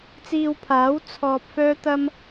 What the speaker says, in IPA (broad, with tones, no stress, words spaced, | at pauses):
t͡siː˧wpʰaː˨˥w t͡sʰɔː˧p̚ fœː˥t̪ɐ˥m